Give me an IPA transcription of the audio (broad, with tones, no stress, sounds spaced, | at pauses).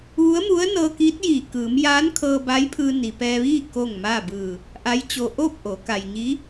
ʋ u˧˥ ə̯ m u˧˥ ə̯ n ɤː˧ k iː˧˥ t̚ j iː˧˩ k ɯː˩˧ m j aː˧˥ n kʰ ɤː˧ b a˧˥ j pʰ ɯː˧ n i˩ p ɛː˧ ʋ iː˥˨ k o˥˨ ŋ m aː˥˨ b ɯː˧˩ | ʔ a˧˥ j t͡ɕ o˧ ʔ oː˥˨ p̚ ʔ o˩˧ k a˩ j ɲ i˧˥